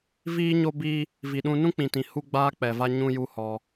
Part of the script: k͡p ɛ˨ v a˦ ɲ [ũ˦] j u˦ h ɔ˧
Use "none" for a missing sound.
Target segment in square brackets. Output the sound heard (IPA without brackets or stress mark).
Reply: ũ˦